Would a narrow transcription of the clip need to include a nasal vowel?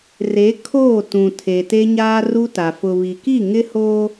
yes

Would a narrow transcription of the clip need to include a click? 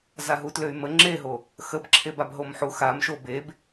yes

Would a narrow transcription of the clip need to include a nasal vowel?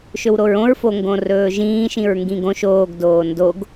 yes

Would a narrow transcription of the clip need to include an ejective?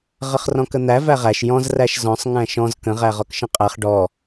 yes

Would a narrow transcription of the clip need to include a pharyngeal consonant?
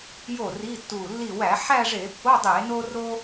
yes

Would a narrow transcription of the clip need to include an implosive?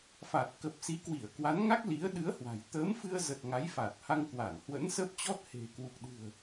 yes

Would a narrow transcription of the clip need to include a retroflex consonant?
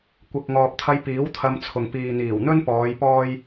no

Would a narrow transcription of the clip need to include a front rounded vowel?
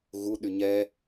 yes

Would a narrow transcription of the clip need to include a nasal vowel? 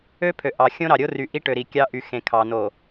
yes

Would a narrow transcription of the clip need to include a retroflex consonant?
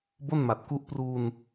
no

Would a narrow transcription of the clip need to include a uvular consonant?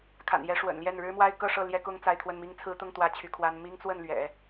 no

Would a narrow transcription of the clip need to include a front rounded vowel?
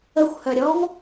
yes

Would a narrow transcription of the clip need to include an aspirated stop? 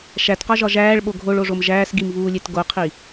yes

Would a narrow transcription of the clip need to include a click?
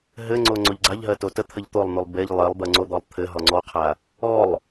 yes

